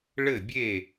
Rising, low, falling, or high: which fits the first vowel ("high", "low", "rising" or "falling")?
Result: falling